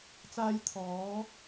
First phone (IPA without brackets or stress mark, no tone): t͡s